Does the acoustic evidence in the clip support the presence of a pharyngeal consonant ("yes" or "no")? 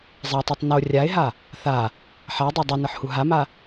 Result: yes